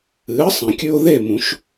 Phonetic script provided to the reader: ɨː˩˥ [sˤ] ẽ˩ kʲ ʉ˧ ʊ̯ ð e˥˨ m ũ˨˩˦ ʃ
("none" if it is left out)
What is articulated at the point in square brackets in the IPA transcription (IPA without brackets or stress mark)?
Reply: sˤ